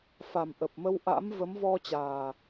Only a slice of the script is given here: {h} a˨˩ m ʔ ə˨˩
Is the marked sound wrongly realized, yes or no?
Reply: yes